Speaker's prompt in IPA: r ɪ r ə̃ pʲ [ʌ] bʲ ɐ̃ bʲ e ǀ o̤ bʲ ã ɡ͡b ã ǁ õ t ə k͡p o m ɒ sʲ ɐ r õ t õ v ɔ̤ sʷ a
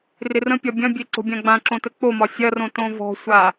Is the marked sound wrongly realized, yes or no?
yes